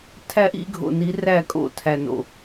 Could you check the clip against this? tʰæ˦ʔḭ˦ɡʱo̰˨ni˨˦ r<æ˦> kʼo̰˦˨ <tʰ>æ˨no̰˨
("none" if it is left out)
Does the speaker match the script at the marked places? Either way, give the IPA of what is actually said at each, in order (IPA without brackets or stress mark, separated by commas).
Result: æ˦˨, tʰ